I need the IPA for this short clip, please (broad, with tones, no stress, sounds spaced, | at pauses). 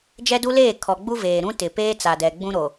d͡ʒ ɛ˦ d u˦ l eː˦˨ kʰ ɔ˨ ɡ͡b u˦ v eː˨ ɾ ũ˦ t ɪ˨ p eː˦ t͡s a˨ d ɛ˨ ɡ͡b ũ˦ ɾ o˨